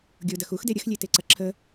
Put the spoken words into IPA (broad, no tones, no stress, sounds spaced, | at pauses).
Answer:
ɡʲ o d ɐ x u x d e ɾʲ ə x lʲ e t e ǀ ɐ ǁʰ ə